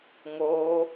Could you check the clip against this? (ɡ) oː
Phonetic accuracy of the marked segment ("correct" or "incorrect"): incorrect